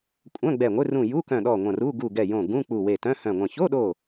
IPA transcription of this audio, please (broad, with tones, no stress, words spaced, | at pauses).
kʷʼœ̃˧˥˧ɡ͡bɛ˧˩ŋʷɪ˧˥˧ rũ˧˩ju˧˥˧kœ̃˧˩ɗɔ˧˩ ŋʷɐ̃˧˩ru˧˥˧ ɡu˧˩ ɡɛ˧˩jõ˧˩ ɡũ˧˥˧k͡pu˧˩ we˧˩tœ̃˧˥˧hœ̃˧˩ŋʷɐ̃˧˩ ço˧˥˧ɗo˧˩